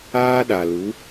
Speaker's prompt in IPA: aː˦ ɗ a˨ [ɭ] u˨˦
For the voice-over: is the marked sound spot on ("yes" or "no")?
no